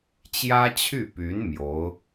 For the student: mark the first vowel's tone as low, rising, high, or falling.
high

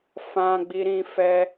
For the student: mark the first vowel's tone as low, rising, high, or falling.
high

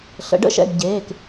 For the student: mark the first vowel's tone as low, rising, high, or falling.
rising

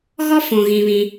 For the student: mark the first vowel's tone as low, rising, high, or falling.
high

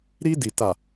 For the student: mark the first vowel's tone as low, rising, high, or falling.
high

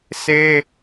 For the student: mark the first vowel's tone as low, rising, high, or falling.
high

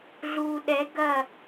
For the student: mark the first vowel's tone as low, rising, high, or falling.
low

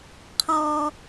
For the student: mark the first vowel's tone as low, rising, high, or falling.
high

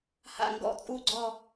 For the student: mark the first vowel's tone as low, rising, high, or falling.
falling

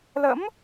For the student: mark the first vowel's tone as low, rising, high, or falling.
rising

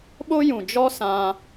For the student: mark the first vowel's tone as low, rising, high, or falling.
high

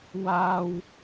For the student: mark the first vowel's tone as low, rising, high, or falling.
high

